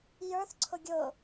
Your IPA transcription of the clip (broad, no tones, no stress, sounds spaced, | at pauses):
j ə˞ θ ǀʰ ʊ ɡʲ ʊ